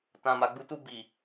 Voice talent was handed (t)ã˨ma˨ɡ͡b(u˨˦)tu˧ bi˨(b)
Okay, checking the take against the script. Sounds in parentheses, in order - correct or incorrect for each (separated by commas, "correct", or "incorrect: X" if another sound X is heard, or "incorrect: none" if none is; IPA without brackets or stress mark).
correct, correct, incorrect: none